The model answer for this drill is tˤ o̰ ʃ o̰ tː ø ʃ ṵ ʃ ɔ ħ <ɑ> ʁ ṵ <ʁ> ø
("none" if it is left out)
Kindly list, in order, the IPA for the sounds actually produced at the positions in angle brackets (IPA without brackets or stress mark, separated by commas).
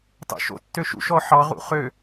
ɑ, χ